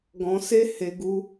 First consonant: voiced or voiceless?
voiced